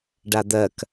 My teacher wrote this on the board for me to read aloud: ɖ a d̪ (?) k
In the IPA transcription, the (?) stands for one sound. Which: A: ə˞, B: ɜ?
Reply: B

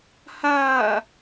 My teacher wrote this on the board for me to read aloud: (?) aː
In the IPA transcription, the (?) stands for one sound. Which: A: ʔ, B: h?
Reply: B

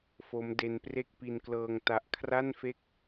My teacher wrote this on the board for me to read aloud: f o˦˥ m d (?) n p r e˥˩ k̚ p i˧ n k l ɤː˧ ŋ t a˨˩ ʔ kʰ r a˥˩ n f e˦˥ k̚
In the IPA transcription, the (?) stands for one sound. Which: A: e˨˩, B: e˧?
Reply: B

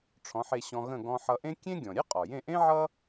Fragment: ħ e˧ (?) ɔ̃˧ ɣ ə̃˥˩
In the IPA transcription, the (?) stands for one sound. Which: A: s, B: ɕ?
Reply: B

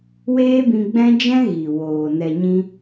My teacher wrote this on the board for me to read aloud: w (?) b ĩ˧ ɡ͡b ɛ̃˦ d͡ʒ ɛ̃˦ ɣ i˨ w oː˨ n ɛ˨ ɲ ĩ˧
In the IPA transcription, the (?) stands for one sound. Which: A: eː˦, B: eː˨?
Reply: A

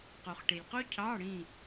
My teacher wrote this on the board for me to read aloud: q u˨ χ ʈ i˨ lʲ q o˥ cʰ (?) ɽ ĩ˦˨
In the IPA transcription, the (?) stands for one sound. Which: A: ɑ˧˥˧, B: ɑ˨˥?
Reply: A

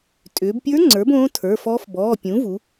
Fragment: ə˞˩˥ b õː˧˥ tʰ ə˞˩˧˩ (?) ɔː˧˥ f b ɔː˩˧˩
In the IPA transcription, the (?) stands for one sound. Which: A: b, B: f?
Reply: B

